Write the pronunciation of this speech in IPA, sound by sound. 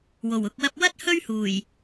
w o˨˩ w ʊ˨ k̚ w ɐ˧ p̚ w ɐ˥ t̚ h ɵ˥ ɥ h uː˨˩ j

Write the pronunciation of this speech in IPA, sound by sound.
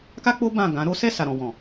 k a˦ k͡p o˦ b ã˦˨ ɡ ã˨˦ ɾ o˦ s ɛ˦˨ s a˨ ɾ ɔ̃˨ w ɔ̃˨

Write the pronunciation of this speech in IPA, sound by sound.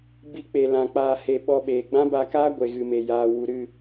b i˧ k͡p e˨ l ã˨ k͡p aː˧ h e˧ ɓ ɔ˧ ɓ eː˨ ɡ͡b ã˦ b a˧ k aː˦ ɡʷ e˨ ɣ ɨ˨ m e˨ j aː˨ w u˨ ɾ ɨ˦˨

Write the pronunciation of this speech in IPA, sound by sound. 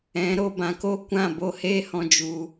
ɛ̃˨˦ ɾ o˧ b ã˧ k o˦ kʷ ã˦˨ b o˦ h eː˦ h ɔ̃˧ d͡ʒ u˧

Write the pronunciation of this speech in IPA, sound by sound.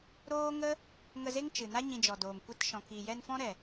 ɾ oː˦ ŋ ə˦ | ŋ ə˧ z e˦ ŋ t͡ʃ ɨ˨ n a˦ ɲ ĩ˧ d͡ʒ ɔ˨ d oː˨ m kʷ e˧ t ʃ ɔ̃˨ k iː˨ j ɛ˧ n f ɔ̃˦ ɾ ɛ˨

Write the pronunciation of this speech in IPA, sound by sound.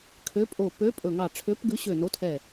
kʰ ø˨˥ pʼ o˧˩ p ø˨˥ pʼ ɵ˧˩ ŋ ɑ˧˩ ʈ͡ʂʰ ø˨˥ p ɡ ʉ˨˥ ɕ ø˧˩ n o˨˥ tʰ ɛ˧˩

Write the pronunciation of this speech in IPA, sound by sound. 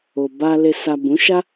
o˨ b a˧ l e˨ s a˨ b ũ˨˦ ʃ a˦

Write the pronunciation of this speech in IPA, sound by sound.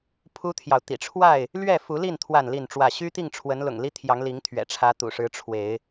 pʰ u˦ t̪ʰ j ɑ˨ ʊ̯ t̪ ḭ˨˩ ʈ͡ʂʰ w a˥˨ ɪ̯ | l ɥ ɛ˥˨ f u˨˦ l i˥˨ n t̪ʰ w a˥˨ n l i˥˨ n ʈ͡ʂ w ä˥˨ ɕ y˦ t̪ i˥˨ ŋ ʈ͡ʂʰ w ə˨˦ n l ʊ̰˨˩ ŋ l i˦ t̪ʰ j ɑ˨˦ ŋ l i˨˦ ŋ t̪ʰ ɥ ɛ̰˨˩ ʈ͡ʂʰ ä˨˦ t̪ ṵ˨˩ ʂ ɻ̩˨˦ ʈ͡ʂʰ w e˨˦ ɪ̯

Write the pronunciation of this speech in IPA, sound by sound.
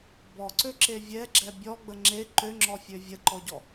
b ɔ ǀ ø ǁ e vʲ ɛ ɡ͡ǁ ɛ bʲ ɔ ɡ͡b ə ŋ͡ǁ e ǃ ø ŋ͡ǁ ɔ fʲ ø vʲ ə ǃ ɔ ɟ ɔ

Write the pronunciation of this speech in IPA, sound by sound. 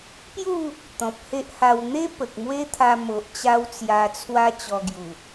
p j u˥˧ | t̪ ɔ̃˨ p̚ h e˦ ʔ h a˧ w n̪ e˦ p ə˨ k̚ m w e˦ t̪ʰ a˧ m o˨ ʔ t͡ɕ a˦ w t͡s j a˧ t͡sʰ w a˦ t͡ɕ ɔ˧ ɡ j u˨˩

